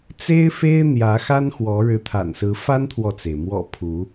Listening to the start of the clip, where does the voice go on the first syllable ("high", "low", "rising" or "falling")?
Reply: high